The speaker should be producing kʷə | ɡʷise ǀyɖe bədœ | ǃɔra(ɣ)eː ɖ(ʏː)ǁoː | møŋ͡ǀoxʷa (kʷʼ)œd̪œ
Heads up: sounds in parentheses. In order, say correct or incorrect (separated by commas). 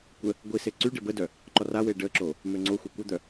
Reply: incorrect, incorrect, incorrect